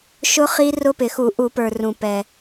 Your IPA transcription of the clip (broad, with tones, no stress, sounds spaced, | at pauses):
ʃ ʊ˦˥ χ i˦˥ r ʊ˦˥ p ɪ˨˩ x u˧˩˧ ʔ u˧˩˧ p ə˞˨˩ r ũ˨˩ p ɛ˨˩